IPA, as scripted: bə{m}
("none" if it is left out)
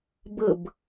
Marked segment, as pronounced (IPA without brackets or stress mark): b